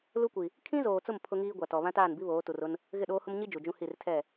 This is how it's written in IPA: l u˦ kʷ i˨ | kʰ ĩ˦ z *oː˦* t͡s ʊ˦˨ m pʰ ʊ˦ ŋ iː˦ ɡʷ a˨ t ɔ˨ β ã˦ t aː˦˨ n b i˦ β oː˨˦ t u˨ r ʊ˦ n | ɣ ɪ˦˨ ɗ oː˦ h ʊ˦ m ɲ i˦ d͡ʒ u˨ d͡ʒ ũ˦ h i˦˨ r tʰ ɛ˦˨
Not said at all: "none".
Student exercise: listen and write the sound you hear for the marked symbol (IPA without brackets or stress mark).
oː˨